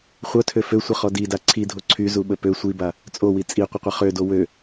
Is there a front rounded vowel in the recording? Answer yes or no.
yes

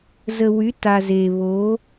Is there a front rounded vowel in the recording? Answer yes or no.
yes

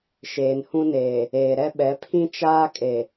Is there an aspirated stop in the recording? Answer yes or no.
yes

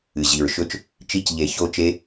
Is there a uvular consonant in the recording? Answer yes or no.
no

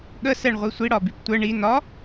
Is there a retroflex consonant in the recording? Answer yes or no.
yes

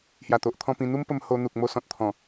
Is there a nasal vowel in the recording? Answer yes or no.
yes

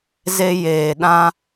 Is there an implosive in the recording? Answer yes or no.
yes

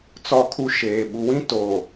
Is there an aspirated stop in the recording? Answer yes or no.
yes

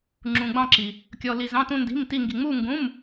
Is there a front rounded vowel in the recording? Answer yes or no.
no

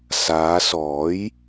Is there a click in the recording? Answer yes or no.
no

